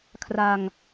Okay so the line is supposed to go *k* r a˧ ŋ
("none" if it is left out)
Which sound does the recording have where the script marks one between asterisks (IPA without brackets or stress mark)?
kʰ